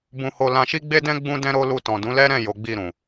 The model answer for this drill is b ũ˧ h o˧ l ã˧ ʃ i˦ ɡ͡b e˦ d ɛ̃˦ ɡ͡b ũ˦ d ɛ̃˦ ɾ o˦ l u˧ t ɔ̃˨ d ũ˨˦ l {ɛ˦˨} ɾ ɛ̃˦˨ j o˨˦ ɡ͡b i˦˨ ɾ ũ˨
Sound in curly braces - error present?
yes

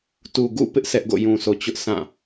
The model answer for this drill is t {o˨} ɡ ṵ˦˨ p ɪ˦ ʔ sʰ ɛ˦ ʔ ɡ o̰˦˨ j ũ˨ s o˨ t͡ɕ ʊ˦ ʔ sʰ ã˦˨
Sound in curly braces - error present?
yes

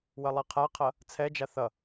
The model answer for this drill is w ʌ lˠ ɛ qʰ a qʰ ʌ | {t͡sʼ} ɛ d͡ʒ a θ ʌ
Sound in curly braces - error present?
yes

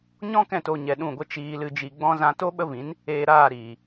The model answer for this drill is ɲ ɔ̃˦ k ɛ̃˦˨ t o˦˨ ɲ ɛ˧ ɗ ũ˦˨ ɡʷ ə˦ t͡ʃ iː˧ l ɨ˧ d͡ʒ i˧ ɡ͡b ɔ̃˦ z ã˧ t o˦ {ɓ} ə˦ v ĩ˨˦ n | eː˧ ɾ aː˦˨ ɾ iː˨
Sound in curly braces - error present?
no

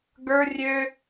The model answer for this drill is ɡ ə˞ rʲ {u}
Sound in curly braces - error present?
yes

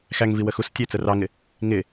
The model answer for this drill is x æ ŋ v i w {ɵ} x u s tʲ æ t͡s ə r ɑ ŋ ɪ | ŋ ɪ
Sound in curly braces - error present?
yes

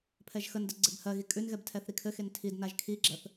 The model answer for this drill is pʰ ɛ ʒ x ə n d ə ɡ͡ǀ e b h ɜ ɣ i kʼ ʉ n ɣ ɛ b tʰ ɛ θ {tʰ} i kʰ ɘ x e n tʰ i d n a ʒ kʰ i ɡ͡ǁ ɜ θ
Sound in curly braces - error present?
yes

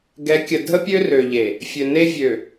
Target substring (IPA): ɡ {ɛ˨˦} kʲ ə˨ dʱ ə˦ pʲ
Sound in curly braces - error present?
no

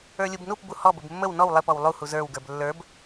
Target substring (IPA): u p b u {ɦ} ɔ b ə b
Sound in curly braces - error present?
yes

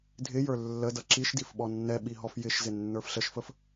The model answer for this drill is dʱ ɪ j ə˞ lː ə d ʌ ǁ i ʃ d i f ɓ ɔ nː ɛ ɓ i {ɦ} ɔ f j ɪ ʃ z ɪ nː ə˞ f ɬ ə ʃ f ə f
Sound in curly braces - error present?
no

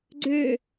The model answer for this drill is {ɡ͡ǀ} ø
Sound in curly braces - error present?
no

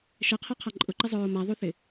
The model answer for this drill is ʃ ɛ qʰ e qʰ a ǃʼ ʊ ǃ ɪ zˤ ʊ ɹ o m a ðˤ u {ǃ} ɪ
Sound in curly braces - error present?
yes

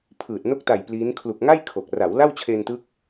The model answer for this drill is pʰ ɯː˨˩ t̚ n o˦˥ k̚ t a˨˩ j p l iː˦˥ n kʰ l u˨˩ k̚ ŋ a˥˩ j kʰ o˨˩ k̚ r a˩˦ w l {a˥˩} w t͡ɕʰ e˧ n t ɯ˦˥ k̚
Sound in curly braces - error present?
no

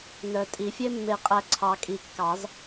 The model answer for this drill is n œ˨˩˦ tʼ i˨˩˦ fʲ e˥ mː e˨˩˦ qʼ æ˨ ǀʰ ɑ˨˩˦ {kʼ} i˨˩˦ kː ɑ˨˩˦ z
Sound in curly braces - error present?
no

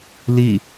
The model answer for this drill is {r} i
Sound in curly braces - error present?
yes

